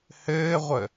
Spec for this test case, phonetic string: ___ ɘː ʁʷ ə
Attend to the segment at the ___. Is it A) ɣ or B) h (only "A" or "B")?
B